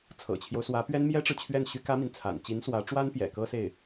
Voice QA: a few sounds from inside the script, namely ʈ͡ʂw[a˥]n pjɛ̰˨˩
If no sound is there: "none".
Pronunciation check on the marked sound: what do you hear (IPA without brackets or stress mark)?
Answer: a˥